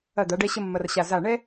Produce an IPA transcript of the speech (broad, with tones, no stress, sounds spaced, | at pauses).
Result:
ɐ˧˩ d̪ a˩˧ ɖ ɛ˧ ɕ ə˧ mː ɐ˧ r ɕ a˧˩ z a˧˩ ɳ ɛ˥